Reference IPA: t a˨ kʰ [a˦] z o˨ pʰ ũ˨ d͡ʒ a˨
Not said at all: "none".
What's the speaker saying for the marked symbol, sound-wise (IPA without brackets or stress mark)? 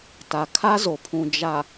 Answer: a˦